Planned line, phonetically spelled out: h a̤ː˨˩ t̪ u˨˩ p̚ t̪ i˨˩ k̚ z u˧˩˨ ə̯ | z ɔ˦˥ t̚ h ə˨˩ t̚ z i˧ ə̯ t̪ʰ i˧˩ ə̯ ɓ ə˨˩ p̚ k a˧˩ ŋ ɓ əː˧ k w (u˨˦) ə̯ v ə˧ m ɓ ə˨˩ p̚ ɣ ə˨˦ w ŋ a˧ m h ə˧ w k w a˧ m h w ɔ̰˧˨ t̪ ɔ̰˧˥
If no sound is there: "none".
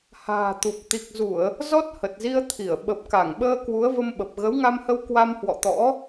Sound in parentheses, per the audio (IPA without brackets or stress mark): u˨˦